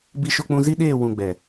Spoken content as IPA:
b i˦ ʃ o˦ k͡p ũ˦ z i˦ ɗ eː˦˨ w ũ˦˨ ɡ͡b ɛ˨

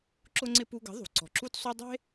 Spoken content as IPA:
ǁ ʊ˦ ŋ͡ǀ ɪ˦ p u˧ ɡ ə̤˨˦ ðˤ ṳ˨ ǀ ɔ̤˨ ǁ u˦ t sˤ u˦ dˤ e̤˦

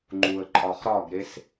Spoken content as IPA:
ŋ͡ǃ u ə̯ ǃʼ ɒ χ ɾ ɒ ɡ ɾ e s

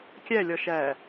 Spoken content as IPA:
kʲ æ lʲ ɒ ʃ æ

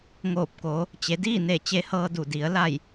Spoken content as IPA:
ŋ oː˧˩ p̚ k oː˩˧ | t͡ɕ e˩˧ d iː˥˨ n e˧˩ t͡ɕ e˧˥ h ɤː˧ d u˧˩ d i˩˧ ə̯ l a˧˩ j

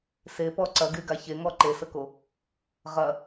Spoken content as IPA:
s e p ɔ ǀ ɐ ɡ y ɡ a ç e ŋ ɔ ǃ e s ə k o | ʁ ɐ

